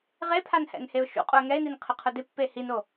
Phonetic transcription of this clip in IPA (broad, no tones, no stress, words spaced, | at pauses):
ʁepʰanhɛ̰n heʊ̯ʃṵ qʼuə̯ŋɛɪ̯nin qʰɪqʰʊdɪ pːehino